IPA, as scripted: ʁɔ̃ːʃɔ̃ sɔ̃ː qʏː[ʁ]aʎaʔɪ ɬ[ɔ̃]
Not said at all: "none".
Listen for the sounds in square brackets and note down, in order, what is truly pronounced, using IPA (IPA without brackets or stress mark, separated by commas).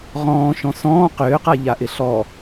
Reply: q, ɔ